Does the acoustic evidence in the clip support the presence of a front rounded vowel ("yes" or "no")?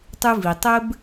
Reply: no